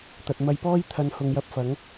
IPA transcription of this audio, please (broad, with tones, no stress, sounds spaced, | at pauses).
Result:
t̪ ɐ˨ t̚ m ɐ˧ j p ɔː˥ j t̪ʰ ɐ˧ n h ʊ˨˧ ŋ j ɐ˧ p̚ f ɐ˨˥ ŋ